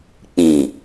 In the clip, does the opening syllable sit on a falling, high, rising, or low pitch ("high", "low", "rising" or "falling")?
low